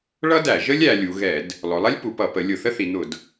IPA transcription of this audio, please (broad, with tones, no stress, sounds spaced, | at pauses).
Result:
ɭ ʌ˥ d æ˧˩˧ ʒ ə˥ lʲ æ˩˧ lʲ u˩˧ ɣ ɛ˧˩˧ d | lˠ ʊ˩˧ lˠ ɛ˥ lʲ p u˩˧ p ʌ˧˩˧ p ə˩˧ lʲ ʊ˧˩˧ θ ə˥ θ i˩˧ n̪ ʊ˧˩˧ d